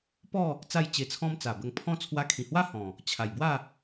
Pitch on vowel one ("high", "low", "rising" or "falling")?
falling